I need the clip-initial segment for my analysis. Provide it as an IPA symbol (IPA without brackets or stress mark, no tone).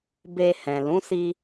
b